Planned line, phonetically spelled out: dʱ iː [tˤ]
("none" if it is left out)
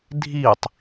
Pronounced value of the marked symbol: tˤ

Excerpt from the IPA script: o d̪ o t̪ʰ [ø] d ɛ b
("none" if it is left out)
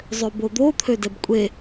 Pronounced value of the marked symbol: ø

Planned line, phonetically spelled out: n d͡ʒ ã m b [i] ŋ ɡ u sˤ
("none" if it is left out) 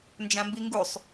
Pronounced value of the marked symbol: i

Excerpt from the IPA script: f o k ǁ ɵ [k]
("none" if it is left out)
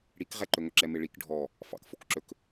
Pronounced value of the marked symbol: k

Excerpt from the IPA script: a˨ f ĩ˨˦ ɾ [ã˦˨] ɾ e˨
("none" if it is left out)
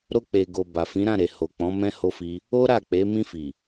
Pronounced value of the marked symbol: ã˦˨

